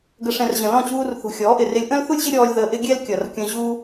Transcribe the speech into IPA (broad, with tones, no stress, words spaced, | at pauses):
ɡə˨ʂɛ̃˨r ʑə̃˨lɔ̃˦˨t͡ɕuː˧rθṳ˨ xʲɔː˨˦ʔɪ˨rɪ˧lʲ ʔə̃˦lθu˦lʲʑɪ˦ ɾʲɔː˧lʲ ðəː˧ʔɪ˦ ɡʲɛ˦lkʲʌ˨rkʲə̃˧ʑuː˦